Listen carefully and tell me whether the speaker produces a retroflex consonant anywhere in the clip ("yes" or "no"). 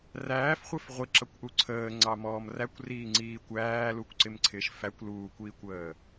no